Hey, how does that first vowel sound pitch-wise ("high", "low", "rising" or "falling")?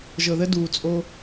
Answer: low